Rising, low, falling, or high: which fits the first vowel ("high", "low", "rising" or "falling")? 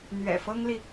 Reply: low